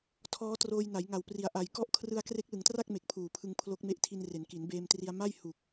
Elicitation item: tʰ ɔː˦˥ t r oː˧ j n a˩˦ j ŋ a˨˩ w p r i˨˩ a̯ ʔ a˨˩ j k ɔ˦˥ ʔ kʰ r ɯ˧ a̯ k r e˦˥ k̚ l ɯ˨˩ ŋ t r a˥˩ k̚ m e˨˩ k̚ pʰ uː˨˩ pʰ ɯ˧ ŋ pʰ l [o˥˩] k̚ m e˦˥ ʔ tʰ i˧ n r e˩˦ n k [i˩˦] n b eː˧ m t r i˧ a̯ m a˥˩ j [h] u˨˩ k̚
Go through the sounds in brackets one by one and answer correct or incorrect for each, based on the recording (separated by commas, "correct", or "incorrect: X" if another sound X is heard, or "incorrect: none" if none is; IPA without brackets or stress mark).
incorrect: o˦˥, correct, correct